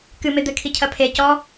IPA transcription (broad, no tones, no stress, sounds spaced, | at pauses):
k ɨ m e d̪ ɘ kʰ i cʰ ɐ pʰ e c ɔ